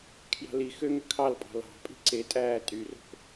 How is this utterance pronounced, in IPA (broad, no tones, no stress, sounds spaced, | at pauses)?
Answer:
kʰ j ɑ̤ l i x ø ŋ ø kʰ ɑ l pʼ ɑ̤ l ɑ̤ pʼ i̤ ǀ e tʼ æː tʼ y r o̤ k